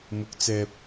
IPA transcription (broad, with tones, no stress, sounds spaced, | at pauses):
m ʊ˨˥ k̚ t͡s ɛː˨ p̚